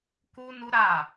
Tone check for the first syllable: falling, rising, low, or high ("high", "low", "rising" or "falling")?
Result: high